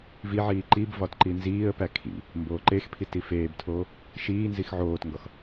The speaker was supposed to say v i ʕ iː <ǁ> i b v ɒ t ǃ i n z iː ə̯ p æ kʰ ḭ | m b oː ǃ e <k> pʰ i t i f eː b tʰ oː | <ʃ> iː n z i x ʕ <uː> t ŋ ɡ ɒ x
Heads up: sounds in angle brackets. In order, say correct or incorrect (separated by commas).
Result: incorrect, incorrect, correct, incorrect